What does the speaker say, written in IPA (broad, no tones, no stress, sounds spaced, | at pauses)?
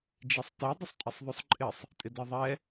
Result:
d͡ʒ i sˤ t e dˤ ʊ sˤ tʼ ɛ sˤ ðˤ u sˤ ǃʼ ɪ sˤ | tʼ ɪ d ɛ ðˤ ɛ